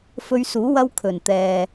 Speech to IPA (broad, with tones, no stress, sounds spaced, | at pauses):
f ɵ˧ ɥ s uː˨˥ w ɐ˥ w kʰ ɵ˨˩ n t̪ ɛː˨